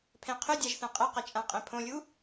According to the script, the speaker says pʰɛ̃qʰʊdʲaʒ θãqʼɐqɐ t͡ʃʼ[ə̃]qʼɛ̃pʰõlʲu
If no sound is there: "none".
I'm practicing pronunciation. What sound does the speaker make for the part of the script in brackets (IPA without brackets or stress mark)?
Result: ã